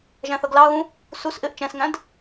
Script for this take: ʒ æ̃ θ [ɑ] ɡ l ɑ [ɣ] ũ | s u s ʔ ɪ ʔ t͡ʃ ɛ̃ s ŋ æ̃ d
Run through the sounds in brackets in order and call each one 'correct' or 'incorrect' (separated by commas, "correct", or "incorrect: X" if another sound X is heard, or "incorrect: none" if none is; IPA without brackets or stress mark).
incorrect: ʌ, correct